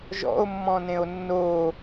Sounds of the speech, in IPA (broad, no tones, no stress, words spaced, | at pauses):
ʒɔ̰o̯ mːɔ̃nẽo̯nːo